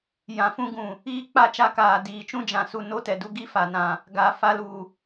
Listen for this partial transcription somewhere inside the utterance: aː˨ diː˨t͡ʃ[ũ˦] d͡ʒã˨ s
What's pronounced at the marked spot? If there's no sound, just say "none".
ũ˦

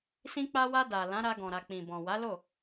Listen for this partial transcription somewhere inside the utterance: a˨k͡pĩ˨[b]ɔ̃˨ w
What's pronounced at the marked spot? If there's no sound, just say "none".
b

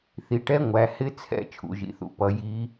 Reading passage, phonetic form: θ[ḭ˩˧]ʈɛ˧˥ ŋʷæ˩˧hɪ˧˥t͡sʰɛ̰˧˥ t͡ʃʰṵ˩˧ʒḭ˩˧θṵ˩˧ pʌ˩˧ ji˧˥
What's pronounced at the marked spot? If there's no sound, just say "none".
i˩˧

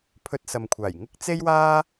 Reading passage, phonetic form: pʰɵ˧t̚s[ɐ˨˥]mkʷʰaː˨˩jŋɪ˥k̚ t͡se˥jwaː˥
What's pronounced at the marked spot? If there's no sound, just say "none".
ɐ˨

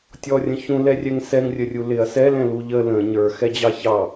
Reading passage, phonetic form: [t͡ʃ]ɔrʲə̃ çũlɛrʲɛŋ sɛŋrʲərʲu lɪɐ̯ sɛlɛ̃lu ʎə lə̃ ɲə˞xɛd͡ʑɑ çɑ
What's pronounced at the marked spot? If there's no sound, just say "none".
tʲ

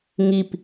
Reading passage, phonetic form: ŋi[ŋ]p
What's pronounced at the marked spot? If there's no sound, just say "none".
none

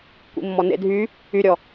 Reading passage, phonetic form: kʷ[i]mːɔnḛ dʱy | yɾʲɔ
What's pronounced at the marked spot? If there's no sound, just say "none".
ḭ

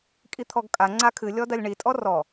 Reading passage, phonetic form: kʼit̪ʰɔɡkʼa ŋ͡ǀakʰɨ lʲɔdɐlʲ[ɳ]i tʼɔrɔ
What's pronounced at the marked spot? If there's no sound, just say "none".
ɳ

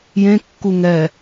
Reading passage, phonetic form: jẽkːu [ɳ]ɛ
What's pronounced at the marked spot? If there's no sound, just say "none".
ŋ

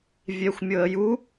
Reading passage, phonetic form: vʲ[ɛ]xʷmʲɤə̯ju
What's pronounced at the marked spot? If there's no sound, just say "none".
ɛ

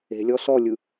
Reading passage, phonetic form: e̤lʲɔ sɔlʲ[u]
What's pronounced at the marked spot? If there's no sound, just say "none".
ɯ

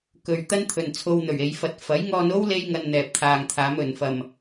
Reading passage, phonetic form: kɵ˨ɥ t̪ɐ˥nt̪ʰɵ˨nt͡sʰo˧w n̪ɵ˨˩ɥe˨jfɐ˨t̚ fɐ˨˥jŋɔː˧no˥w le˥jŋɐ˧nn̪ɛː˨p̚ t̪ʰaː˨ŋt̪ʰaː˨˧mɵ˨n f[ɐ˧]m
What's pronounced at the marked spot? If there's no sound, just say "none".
ɐ˨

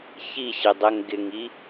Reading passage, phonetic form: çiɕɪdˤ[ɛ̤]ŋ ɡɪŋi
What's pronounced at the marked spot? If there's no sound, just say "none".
ɛ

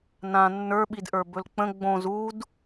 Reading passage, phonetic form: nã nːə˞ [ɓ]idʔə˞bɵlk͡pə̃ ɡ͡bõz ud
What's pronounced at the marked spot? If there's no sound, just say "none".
ɓ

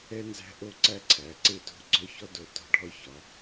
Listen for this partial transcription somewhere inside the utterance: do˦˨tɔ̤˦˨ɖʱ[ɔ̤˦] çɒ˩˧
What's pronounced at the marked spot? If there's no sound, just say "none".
ɔ˦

